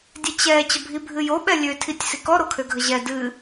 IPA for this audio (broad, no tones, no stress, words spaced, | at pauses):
dʲɛt͡ɕɛ t͡ɕəbʱibʱɨjo ɓɛlʲø tʰitʲsikɔ ɾokʰøɡʱəʑɛ dɨ